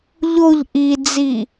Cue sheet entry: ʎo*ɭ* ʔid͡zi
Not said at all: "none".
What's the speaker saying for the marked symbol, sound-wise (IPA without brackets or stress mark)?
ʎ